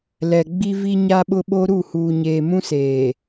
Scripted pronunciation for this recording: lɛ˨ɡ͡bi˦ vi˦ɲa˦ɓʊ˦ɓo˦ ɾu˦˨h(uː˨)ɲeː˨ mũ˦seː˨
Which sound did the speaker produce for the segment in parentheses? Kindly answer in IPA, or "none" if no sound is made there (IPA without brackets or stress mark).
uː˨